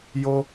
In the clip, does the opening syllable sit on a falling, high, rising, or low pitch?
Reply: high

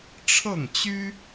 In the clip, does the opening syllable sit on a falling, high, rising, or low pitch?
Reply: falling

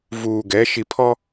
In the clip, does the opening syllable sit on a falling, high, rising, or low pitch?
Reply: low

